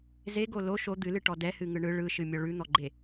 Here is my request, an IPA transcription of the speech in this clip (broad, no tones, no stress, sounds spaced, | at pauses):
z e ɡ o l o ʃ o d̪ ɨ l ɨ ʈ ɔ d ɛ h ɨ ŋ ɯ ɳ ɯ ɭ ɯ ʃ ɨ mʲ ɔ ɭ ʉ n̪ ɔ ɡ͡ǃ e